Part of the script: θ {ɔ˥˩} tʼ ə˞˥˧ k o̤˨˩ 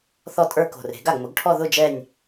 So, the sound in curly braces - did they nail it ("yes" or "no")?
yes